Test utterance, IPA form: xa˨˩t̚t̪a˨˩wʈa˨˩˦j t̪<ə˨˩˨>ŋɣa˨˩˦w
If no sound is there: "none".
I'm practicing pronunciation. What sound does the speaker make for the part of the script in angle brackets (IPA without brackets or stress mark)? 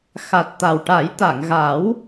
a˨˩˨